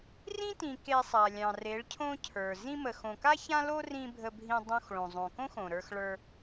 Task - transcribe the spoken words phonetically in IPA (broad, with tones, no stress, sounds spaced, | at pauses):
r ĩ˦ t ĩ˨ k e˧ sˤ a˨ lʲ ɑ̃˨ r e˨˦ ɭ cʰ õ˦ cʰ ə˞˨ z ĩ˧ m ə˨ x õ˨ k a˦ ç ã˦ l o˦ r ĩ˧ bʱ ə˧ bʱ ĩ˧ dˤ õ˧ x ɭ õ˨ zˤ õ˨ k õ˦ x õ˨ ɾ ə˞˧ x ɭ ə˞˧